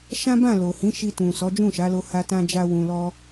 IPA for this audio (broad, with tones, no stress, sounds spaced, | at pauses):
ʃ ã˦ b ã˦˨ l o˨ h ĩ˨˦ ʃ i˧ t ũ˨ s ɔ˨˦ d͡ʒ ũ˦˨ ʃ a˨˦ l o˧ h a˦ t ã˦ d͡ʒ a˦ w ũ˧ l ɔ˦